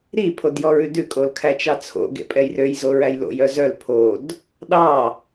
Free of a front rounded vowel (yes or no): no